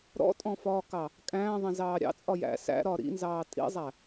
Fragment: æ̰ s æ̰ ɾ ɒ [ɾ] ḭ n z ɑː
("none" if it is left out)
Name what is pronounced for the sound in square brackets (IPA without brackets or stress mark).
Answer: ɾ